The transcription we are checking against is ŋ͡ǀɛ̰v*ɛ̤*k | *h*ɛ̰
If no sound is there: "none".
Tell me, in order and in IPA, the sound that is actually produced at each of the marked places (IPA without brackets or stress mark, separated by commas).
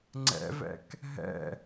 ɛ̰, ɦ